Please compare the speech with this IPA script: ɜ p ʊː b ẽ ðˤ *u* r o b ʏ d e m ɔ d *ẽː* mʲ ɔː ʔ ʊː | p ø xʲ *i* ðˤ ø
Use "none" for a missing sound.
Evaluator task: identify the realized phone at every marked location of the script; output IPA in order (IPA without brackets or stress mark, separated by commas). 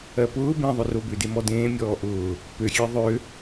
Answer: ʏ, ẽː, e